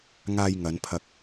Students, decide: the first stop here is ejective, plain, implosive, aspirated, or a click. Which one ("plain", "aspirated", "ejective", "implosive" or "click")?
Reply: aspirated